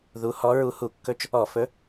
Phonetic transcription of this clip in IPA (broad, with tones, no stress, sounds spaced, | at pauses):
ð u˨˥ h ɔ˨˥ ɹ u˨˥ h u˧˩˧ kː ɵ˥˨ t͡ʃ | ɔ˧˩˧ f ɵ˨˥